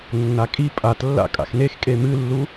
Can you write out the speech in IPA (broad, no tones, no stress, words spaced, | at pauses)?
nːakʼi pʼatlːa̰ kʼa̰xnex kʼemɨlːu